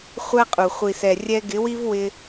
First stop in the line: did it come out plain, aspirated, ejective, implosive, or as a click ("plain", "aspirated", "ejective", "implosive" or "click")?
ejective